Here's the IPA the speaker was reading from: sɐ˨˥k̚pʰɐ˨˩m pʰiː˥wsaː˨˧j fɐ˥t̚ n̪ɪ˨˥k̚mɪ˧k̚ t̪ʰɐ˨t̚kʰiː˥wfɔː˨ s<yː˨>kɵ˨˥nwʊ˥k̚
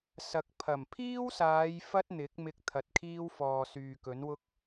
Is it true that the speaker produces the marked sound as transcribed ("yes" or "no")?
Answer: yes